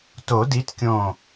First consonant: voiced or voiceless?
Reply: voiceless